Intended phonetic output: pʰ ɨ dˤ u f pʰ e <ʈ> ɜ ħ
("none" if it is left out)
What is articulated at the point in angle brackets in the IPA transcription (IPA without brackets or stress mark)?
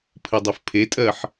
tʼ